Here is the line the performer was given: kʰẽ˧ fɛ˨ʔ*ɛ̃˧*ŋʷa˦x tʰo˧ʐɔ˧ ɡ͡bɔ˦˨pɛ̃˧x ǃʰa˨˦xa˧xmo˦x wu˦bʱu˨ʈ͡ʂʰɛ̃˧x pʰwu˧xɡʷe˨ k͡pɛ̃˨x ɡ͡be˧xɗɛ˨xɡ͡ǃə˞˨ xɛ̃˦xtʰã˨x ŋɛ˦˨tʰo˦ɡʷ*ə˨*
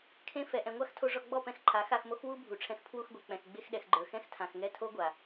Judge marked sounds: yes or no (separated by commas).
no, no